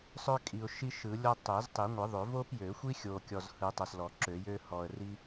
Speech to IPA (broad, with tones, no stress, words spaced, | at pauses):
sˤœ˥kʼi˨ʊ̯ʃi˥ ʃɯ˨˩˦lʲɔ˥ tˤø˨˩˦ztˤi˨˩˦ŋʷɯ˨˩˦ðˤø˨˩˦ vo˥pjø˨˩˦xʷi˥xʲo˨ kʲɔ˨zhɯ˨˩˦ tˤœ˨slɔ˨˩˦ǁø˨˩˦jø˥ hɔ˨ə̯ri˥